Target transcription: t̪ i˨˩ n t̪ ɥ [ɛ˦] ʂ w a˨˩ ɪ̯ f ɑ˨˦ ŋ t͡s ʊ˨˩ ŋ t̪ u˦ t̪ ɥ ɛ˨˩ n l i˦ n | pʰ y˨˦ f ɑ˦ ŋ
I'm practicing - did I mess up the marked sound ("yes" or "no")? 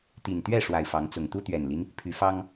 yes